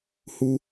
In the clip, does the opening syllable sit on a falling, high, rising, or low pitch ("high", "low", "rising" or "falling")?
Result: high